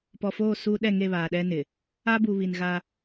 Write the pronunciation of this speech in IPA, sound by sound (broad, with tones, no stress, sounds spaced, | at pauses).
p ɔ˨ f oː˦˨ s uː˦ ɗ ɛ˦˨ ŋ e˦˨ β aː˨ ɗ ɛ˦ n ɪ˨ | a˦ b u˨ β i˨ n ɣ a˦